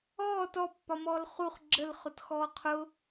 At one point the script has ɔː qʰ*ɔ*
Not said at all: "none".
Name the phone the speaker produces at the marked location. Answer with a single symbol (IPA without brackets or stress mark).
ʊ